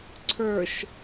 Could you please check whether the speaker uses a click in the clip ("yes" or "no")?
yes